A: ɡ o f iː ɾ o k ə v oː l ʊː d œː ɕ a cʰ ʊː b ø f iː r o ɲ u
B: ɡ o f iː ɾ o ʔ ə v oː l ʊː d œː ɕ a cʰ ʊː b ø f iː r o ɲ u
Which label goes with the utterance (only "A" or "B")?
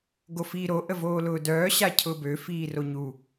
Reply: B